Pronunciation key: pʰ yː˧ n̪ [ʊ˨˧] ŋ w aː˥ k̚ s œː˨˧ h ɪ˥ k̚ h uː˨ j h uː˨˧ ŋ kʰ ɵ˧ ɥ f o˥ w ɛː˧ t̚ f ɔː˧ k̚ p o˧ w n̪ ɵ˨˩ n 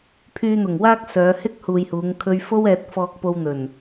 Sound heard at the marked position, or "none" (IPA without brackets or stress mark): ʊ˨˩